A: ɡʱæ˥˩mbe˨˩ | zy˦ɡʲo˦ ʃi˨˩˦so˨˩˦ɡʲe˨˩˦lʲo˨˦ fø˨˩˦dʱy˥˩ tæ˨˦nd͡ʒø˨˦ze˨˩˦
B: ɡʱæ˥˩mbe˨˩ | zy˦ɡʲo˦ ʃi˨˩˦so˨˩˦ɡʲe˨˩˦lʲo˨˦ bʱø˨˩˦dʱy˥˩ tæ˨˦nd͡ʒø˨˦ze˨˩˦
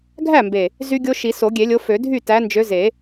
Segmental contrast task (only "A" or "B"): A